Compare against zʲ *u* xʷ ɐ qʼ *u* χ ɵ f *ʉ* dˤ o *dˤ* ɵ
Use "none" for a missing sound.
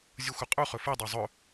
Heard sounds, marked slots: u, u, ɨ, zˤ

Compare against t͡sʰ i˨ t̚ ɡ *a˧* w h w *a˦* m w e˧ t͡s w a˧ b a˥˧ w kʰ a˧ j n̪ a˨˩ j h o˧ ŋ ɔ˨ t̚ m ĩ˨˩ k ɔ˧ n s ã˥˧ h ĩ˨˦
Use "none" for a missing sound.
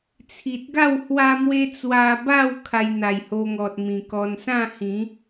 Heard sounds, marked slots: a˥˧, a˧

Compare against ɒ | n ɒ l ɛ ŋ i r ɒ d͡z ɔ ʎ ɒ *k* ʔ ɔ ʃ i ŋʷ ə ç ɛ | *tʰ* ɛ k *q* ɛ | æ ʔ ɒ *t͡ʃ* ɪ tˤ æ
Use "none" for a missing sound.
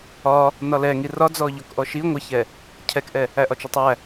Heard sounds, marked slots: k, cʰ, ʔ, t͡ʃ

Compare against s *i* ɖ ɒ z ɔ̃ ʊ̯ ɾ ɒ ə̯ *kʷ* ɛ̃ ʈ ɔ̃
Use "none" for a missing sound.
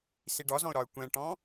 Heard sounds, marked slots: i, kʷ

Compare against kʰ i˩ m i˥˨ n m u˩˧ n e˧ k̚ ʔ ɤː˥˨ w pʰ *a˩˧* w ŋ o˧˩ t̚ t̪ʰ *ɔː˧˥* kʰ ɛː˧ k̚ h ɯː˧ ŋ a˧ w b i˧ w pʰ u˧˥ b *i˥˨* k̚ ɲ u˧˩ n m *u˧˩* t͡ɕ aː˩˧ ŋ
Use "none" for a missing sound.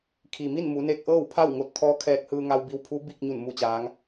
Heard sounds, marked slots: a˥˨, ɔː˧˥, i˥˨, u˧˩

